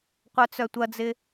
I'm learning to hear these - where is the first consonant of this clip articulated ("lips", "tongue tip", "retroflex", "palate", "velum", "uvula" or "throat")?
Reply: uvula